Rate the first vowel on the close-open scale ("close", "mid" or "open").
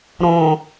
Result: mid